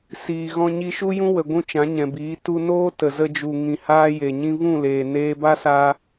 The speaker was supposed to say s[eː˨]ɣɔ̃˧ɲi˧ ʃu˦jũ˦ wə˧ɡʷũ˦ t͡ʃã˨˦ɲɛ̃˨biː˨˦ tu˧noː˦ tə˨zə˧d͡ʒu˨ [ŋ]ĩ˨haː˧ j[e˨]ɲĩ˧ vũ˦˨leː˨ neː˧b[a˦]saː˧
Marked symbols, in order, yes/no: no, yes, yes, yes

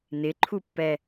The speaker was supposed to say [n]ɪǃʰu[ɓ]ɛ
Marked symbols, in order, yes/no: yes, no

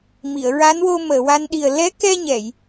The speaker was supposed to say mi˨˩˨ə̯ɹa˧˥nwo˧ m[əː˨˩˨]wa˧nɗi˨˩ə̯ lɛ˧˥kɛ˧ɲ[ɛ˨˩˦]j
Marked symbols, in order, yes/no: yes, no

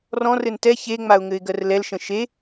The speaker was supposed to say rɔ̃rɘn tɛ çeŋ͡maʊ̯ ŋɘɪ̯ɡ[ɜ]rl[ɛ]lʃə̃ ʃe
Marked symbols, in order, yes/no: yes, yes

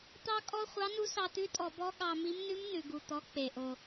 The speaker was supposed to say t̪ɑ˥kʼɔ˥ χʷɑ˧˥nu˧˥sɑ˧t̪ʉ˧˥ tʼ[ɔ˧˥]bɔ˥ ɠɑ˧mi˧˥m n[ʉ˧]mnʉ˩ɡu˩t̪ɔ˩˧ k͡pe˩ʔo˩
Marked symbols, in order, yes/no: no, no

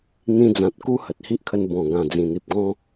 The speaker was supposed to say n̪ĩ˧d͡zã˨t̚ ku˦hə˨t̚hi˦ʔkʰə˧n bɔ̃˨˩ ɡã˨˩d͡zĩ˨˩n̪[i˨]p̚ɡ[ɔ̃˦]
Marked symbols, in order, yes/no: yes, yes

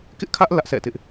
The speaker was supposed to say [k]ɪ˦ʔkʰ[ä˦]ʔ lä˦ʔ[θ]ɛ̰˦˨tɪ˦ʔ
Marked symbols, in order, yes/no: yes, yes, no

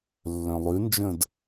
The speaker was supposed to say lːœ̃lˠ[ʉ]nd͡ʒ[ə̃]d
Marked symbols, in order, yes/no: yes, yes

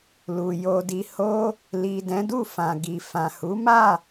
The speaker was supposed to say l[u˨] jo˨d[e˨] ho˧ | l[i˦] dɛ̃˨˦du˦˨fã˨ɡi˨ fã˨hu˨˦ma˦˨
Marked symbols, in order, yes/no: yes, no, no

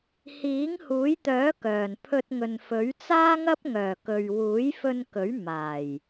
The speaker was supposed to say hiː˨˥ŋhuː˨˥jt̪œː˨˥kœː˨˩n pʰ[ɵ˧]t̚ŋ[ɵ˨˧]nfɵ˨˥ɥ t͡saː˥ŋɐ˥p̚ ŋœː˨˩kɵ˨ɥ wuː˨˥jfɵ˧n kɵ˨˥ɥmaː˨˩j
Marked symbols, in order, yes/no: yes, no

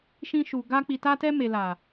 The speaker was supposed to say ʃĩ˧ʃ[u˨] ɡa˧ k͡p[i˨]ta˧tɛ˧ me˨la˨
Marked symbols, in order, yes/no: yes, yes

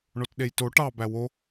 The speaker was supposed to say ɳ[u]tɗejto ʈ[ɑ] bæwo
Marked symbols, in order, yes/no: no, yes

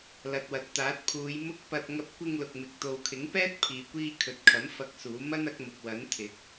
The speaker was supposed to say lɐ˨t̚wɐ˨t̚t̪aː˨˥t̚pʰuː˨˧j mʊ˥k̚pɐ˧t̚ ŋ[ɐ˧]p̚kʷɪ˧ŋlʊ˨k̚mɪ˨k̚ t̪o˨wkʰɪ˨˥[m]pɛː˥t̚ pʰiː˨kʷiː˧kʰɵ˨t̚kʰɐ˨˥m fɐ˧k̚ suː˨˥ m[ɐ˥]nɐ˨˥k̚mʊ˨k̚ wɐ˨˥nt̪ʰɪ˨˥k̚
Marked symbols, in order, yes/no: yes, no, yes

